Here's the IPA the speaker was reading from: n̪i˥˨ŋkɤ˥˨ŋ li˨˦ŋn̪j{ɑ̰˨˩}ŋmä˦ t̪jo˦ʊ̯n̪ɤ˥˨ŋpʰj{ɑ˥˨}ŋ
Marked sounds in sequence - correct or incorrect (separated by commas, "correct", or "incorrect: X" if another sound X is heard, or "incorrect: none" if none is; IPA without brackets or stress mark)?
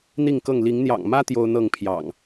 correct, incorrect: ɑ̰˨˩